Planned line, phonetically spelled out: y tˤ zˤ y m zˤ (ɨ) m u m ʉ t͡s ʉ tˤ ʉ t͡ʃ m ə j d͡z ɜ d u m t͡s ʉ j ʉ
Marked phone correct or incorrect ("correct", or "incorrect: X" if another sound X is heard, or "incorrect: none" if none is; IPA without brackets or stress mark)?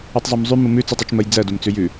incorrect: y